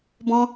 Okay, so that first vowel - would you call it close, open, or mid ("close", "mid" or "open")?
mid